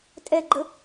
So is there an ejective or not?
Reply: yes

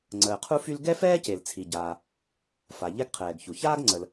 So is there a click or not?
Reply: yes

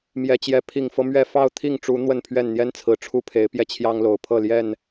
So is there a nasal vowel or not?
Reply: no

